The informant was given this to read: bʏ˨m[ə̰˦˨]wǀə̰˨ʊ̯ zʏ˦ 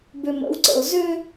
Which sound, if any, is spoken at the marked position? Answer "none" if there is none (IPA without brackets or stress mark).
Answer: ə̰˨˦